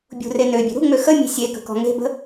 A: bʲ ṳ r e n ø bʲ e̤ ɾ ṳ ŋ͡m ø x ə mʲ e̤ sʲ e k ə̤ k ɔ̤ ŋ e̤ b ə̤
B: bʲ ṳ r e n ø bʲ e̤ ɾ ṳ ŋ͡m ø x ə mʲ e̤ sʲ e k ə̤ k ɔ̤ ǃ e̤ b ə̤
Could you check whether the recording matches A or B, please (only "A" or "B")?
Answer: A